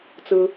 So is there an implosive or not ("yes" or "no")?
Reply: no